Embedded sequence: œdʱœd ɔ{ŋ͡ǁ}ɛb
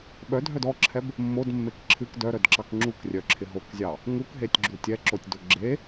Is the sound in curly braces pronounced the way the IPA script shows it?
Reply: no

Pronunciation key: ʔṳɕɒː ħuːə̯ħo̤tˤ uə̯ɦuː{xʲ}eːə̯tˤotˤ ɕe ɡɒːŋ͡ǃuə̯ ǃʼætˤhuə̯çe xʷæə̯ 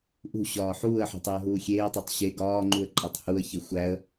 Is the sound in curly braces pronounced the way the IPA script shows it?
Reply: yes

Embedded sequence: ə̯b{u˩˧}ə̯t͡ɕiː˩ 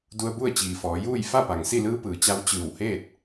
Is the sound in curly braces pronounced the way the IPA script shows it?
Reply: no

